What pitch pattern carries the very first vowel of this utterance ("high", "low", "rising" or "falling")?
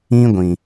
high